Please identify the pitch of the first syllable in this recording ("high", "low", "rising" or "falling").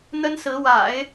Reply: high